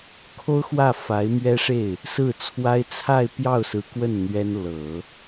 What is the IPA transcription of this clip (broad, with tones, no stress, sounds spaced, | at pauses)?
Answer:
kʰ o˥ ʊ̯ x w ä˥˩ f a˧˥ ɪ̯ m ɥ ɛ˥ ʂ e˥˩ ɪ̯ | s ɹ̩˥˩ t͡sʰ w a˥ ɪ̯ t͡sʰ a˥˧ ɪ̯ p j ɑ˥˩ ʊ̯ s ɹ̩˧˥ k w ə˥˩ n n̪ ɥ ɛ˥ n l ɤ˨˩˦